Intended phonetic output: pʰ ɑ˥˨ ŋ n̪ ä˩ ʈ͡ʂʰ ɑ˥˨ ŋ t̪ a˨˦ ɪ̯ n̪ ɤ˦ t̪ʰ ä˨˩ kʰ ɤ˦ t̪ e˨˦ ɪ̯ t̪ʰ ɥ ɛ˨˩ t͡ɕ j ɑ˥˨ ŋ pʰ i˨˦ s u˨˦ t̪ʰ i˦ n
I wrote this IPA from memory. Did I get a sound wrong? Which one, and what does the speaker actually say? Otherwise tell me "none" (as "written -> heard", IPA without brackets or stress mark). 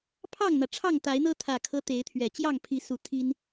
none